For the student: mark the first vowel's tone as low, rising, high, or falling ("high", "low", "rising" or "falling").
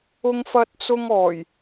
high